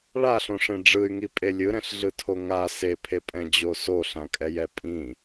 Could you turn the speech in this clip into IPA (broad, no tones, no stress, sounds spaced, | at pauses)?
ɭ a ɬ õ ʂ ẽ ɖ͡ʐ ɯ y̯ ŋ i pʼ e lʲ ɯ ɾ ɛ̃ ɬ ɮ ɯ tʰ o ŋ a s e pʰ e pʼ ɛ̃ d͡ʑ o s o ɬ ã kʼ ɛ j ɛ pʼ ĩ